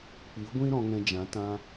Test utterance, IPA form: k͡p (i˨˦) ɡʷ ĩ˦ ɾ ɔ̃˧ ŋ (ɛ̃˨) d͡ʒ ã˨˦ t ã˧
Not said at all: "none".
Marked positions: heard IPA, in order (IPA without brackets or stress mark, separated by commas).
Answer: i˨˦, ɛ̃˧